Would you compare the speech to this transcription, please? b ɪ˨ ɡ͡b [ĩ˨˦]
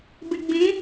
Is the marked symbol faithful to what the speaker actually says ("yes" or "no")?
yes